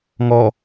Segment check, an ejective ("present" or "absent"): absent